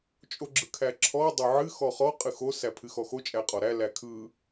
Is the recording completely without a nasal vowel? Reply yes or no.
yes